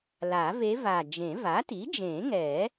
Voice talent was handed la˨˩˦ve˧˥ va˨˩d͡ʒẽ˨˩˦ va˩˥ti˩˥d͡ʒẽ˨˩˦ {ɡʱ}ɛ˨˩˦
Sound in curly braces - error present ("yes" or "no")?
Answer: yes